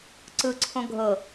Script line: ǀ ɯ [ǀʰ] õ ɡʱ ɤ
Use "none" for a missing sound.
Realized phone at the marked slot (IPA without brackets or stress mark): ǀʰ